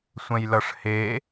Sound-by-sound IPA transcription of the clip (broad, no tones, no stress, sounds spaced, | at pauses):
sʷ ɛ̃ j l ʌ ʂ h e